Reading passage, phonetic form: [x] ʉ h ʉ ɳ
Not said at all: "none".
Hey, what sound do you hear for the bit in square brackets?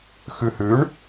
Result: x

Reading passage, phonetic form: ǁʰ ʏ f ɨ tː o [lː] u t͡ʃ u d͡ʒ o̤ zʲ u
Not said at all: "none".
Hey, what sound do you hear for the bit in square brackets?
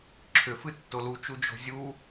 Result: l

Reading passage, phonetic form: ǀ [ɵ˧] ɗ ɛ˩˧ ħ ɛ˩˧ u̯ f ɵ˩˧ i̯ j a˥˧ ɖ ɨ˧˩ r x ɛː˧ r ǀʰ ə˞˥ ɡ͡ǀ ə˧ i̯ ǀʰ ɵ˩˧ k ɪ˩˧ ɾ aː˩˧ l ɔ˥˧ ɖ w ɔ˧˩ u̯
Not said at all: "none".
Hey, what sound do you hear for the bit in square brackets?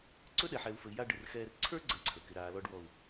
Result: ɵ˥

